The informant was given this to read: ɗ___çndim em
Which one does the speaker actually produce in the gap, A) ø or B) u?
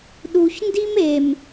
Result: B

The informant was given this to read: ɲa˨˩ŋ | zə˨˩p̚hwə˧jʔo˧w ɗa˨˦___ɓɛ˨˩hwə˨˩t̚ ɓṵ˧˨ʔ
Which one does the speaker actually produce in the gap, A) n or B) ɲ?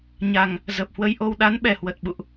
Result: A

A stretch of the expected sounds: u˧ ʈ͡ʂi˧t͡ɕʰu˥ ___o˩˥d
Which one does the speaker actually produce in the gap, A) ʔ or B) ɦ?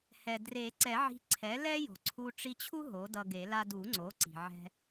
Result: B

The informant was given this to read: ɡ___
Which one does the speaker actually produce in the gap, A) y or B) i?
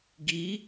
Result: B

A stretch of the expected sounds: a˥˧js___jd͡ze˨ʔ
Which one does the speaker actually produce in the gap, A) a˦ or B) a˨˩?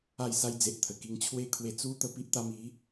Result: A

